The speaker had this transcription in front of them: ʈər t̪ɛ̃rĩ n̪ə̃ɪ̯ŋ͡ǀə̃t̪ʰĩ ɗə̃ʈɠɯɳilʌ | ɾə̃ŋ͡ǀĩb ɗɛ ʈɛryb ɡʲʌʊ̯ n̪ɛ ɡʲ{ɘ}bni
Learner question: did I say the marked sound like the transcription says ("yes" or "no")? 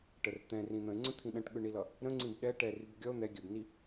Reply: yes